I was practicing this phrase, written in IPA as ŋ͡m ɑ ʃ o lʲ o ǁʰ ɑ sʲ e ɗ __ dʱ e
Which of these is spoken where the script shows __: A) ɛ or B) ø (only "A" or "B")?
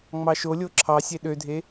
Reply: B